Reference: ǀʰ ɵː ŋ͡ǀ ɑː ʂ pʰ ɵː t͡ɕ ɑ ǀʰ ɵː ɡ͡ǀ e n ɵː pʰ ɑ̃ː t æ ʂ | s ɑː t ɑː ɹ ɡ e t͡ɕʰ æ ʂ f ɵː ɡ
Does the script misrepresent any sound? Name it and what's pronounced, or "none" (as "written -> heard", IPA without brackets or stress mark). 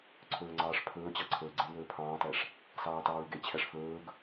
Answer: none